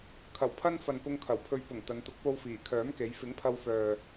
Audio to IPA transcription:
kʰ ɐ˨˩ w pʰ ɐ˥ n f ɐ˨ n p ʊ˧ ŋ kʰ ɐ˨˩ w pʰ ɵ˧ ɥ p ʊ˨˩ ŋ t̪ ɐ˨˧ n t̪ ʊ˨˥ k̚ p o˧ w f iː˨˩ kʰ œː˨˥ m k e˨˧ j f ɪ˨˥ ŋ pʰ ɐ˧ w f œː˨

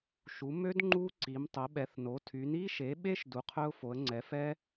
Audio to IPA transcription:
ʃ u˩˥ m ø˦˥ d ŋ͡ǃ u˦˥ ǀ i˩˥ m tˤ ə˩˥ ɓ ɛ˩˥ θ n o˩˥ tʰ y˩˥ n i˦˥ ʃ e˩˥ ɓ e˦˥ ʃ d u˩˥ qʰ œ˦˥ ʊ̯ f o˩˥ ə̯ ŋ͡ǀ ɛ˩˥ f ɛ˦˥

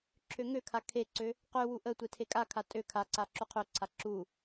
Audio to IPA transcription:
ǁʰ ø ŋ ø kʰ a kʰ e ǀ ø | q ø w u ʔ ə tʷ e tʰ e kʼ a kʰ a tʼ ø kʰ a ǀ a ǁ u qʰ ø ǀʰ a ǁ u

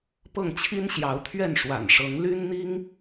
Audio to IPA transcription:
p ɤ˥˩ ŋ t͡ɕʰ i˥ n ɕ j ɑ˧˥ ʊ̯ t̪ʰ ɥ ɛ˥˩ n ʂ w a̰˨˩ n ʂ ɤ˧˥ ŋ l y˥ n n̪ i˥ ŋ

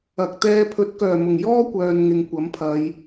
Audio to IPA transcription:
ɐ˨ k̚ t̪ ɛː˥ pʰ ɵ˨˥ t̚ k œː˨˩ m ʊ˨˩ ŋ j ɔː˥ kʷ œː˨ n ŋ ɪ˨ ŋ kʷ ɐ˨˥ m pʰ ɐ˨˧ j

